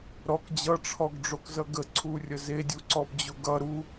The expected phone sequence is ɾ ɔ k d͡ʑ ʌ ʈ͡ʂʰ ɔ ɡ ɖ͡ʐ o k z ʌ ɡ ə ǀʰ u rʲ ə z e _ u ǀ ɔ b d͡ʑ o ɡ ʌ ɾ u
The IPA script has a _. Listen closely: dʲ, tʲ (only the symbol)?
dʲ